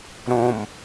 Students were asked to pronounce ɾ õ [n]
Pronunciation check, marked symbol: incorrect: m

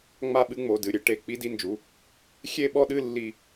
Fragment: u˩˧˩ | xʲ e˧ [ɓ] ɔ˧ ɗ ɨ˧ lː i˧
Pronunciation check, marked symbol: correct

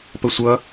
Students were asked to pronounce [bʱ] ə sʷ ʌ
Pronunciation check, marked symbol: incorrect: p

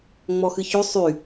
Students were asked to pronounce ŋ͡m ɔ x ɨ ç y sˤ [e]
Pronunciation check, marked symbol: incorrect: y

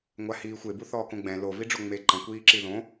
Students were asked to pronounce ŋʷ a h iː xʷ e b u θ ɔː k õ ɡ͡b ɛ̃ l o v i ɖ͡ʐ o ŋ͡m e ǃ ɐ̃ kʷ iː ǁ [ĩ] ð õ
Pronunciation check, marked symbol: incorrect: i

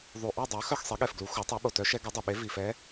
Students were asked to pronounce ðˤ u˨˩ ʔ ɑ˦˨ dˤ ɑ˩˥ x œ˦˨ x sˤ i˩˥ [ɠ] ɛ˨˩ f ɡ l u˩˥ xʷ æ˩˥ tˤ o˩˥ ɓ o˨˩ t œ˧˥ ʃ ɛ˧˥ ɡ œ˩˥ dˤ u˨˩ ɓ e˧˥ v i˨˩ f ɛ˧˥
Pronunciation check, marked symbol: correct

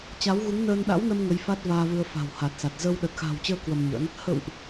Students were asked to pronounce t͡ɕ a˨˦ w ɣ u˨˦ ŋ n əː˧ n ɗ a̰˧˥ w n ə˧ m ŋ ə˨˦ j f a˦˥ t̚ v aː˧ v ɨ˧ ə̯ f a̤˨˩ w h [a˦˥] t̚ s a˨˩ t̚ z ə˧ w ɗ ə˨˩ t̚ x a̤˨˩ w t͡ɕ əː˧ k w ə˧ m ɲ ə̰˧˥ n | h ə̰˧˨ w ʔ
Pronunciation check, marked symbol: incorrect: a˨˩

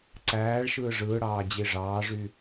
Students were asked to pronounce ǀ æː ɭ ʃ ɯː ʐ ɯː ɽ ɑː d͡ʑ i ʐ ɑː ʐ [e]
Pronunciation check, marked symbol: incorrect: y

